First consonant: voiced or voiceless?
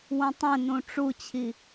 voiced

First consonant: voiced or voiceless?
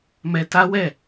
voiced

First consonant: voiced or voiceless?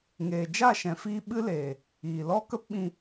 voiced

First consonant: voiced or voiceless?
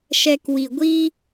voiceless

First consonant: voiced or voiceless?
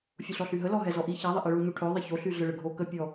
voiceless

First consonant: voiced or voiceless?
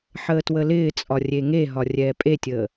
voiceless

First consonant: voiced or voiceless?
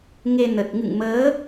voiced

